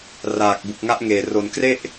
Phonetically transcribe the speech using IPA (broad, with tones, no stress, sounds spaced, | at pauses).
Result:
r aː˨˩ k̚ b u˨˩ k̚ ŋ a˦˥ ʔ ŋ eː˨˩ r o˩˦ n k r e˥˩ ʔ